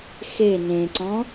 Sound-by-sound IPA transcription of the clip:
x e n ẽ ǀ ɔ̃

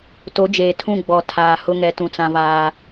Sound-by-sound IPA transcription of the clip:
t o˨˦ d͡ʒ eː˨ tʰ ũ˦˨ ɡ͡b ɔ˨ tʰ aː˨ h ʊ˦ ŋ ɛ˨˦ t ũ˨ t͡s ã˦ v aː˦

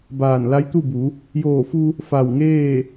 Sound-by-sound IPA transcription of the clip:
b aː˧˩ n l a˧˥ j t̪ u˥˨ b u˩˧ | j oː˧˩ f u˧ | f a˧˩ w ŋ eː˥˨

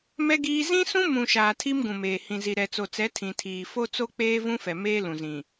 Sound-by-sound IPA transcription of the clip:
m ɛ˦ ɡ iː˦ z ĩ˦ s ũ˦ m ũ˨ ʃ aː˨ tʰ i˦ m ɡ ũ˨ m eː˨ h ĩ˨ z i˨ ɾ ɛ˨ t͡s o˨ t͡s ɛ˨˦ tʰ ĩ˨ tʰ iː˨ f o˦ t͡s o˦ k͡p eː˦ v ũ˦ f ɛ˨ m eː˦ l ũ˨ z ĩ˨

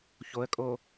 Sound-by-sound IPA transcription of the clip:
ç o ə̯ kʼ o

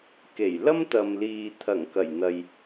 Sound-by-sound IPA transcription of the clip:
k e˨˩ j l ɐ˥ m t̪ ɐ˨ m l iː˨ t̪ʰ ɐ˨˩ ŋ k ɐ˨˩ j n̪ ɐ˨ j

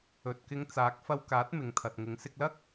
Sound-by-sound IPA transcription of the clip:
ɵ˨ t̚ k ɪ˧ ŋ t͡s aː˨˥ k̚ f ɐ˧ w k aː˨˥ t̚ m ɪ˨ ŋ t̪ʰ ɐ˨ t̚ ŋ ɪ˨˧ ŋ s ɪ˧ k̚ l ɐ˥ k̚

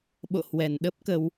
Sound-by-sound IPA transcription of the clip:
ɓ o̰˧˨ h w ɛ˨˩ n ɗ ə˦˥ p̚ k ə˧ w

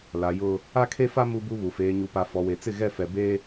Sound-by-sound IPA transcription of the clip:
l a˨ j ʊ˦ | a˦ kʰ e˦ f a˦ m u˦ b u˦ β u˨ f eː˨ ɲ u˨ p a˨ f ɔ˨ w e˨ t͡s ɪ˦˨ ɣ ɛ˦˨ f ɛ˨ b e˦

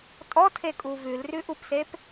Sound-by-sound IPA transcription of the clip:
tʼ ɔ tʰ e kʼ u v ʉ l r ʉ ʔ u p s e p

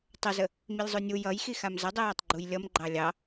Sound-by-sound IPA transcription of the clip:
tˤ ə z ə | m i lʲ zˤ u nʲ u j ʌ j x i x a m z ə dˤ i j ʌ tˤ ɡ͡ǃ u j lʲ ʌ m ɡ͡ǃ ɑ lʲ ɑ

